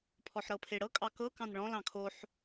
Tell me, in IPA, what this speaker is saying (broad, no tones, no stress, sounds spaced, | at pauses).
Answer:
pʰ ɔ ħ ɾ ɤ pʰ e ɽ ɤ kʼ ɑ k ɤ k ɑ̃ n ɭ ɔ̃ l ɑ̃ kʰ o ħ